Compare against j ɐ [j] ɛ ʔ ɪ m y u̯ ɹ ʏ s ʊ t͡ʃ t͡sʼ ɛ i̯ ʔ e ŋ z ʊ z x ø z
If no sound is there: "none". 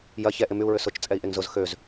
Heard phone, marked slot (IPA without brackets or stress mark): ç